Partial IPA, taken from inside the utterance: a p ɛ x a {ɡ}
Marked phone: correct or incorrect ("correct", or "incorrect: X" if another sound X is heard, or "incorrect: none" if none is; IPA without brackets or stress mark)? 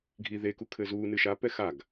correct